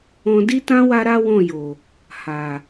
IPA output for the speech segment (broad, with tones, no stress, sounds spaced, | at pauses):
ɔ̃˨ d i˧ t ã˧ w a˦ ɾ a˦ w ɔ̃˦˨ j o˨ | h a˨